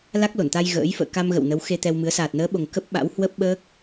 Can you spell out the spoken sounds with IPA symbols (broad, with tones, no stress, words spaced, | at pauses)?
la˦˥k̚lo˧˩nt̪a˧j ɣə̰ː˧˥j fə̰ː˧˨ka˧mɣə̰˧˨w nə˨˦wxe˧t̪ɛ˧wmɨ˨˦ə̯ saː˨˩t̚nəː˨˦ɓo˨˩ŋ kə˦˥p̚ɓa̰˧˥w hwə˦˥p̚ɓəː˦˥k̚